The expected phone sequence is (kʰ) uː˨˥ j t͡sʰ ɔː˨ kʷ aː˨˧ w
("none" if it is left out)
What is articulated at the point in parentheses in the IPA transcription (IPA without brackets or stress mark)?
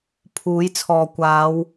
pʰ